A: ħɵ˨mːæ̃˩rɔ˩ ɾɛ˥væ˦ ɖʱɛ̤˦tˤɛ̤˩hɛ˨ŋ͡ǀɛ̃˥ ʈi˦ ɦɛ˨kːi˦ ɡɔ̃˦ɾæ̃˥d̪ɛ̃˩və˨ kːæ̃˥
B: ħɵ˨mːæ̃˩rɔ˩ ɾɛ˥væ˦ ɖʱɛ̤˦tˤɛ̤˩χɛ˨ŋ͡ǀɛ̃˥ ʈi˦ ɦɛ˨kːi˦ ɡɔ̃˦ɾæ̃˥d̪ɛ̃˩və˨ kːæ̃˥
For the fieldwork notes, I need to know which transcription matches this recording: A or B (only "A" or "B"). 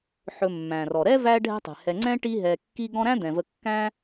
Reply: A